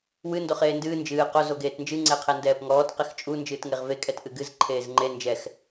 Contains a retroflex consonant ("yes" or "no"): no